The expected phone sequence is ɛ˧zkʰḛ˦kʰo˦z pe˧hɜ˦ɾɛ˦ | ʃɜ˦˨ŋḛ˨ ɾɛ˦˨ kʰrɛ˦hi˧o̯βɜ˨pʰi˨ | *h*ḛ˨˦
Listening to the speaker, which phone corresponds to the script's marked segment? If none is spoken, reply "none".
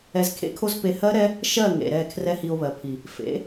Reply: f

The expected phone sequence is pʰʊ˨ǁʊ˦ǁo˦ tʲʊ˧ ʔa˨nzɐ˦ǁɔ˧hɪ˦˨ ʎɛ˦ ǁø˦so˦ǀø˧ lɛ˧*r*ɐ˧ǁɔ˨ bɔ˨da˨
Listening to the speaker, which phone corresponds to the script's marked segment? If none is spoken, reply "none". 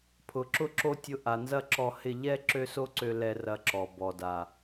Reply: r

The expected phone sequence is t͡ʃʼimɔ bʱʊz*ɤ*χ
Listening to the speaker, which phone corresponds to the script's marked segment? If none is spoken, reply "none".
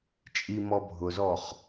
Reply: ɔ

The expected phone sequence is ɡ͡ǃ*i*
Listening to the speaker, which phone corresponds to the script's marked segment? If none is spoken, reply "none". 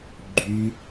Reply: y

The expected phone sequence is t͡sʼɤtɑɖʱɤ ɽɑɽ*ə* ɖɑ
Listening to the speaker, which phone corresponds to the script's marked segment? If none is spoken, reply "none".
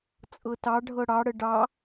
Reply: ə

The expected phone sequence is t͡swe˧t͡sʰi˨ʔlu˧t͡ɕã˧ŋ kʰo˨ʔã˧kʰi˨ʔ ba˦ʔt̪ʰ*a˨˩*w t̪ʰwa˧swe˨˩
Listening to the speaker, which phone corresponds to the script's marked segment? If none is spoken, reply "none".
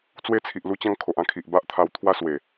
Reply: a˧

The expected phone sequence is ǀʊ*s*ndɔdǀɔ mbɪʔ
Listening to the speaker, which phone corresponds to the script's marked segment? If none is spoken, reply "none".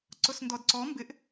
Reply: s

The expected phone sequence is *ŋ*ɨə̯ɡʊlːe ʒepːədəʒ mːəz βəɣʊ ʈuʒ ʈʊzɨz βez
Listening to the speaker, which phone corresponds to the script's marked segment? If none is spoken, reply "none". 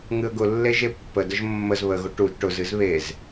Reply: ŋ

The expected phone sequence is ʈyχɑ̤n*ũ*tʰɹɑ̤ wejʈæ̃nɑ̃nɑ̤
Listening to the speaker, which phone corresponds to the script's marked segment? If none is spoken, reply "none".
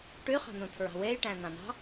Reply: ũ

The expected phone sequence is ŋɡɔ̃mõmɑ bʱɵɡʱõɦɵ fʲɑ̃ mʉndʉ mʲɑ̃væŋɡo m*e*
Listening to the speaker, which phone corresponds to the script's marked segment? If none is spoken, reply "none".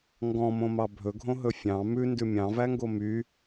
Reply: y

